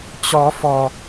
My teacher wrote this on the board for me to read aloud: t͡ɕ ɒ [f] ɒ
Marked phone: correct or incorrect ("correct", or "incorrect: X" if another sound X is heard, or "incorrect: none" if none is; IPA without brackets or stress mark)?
correct